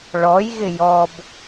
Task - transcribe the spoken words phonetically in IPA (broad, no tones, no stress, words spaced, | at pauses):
ɭɔjɣɪ jɔb